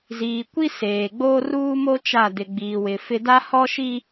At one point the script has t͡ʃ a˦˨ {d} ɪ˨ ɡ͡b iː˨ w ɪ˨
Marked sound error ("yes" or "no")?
no